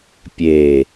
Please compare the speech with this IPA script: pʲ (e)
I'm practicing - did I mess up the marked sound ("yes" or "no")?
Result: no